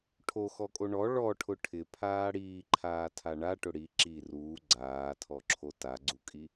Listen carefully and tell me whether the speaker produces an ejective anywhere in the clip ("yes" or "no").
yes